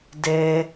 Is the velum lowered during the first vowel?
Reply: no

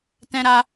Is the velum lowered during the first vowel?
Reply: yes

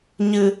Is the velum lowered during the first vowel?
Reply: no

